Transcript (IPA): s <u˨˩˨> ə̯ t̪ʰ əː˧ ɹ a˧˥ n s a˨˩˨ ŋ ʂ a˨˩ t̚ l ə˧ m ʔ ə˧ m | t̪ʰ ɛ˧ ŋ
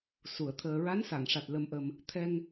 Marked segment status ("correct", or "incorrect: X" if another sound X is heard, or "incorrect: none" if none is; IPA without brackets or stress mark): correct